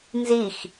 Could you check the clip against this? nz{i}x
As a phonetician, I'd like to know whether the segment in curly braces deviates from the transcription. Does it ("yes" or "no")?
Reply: no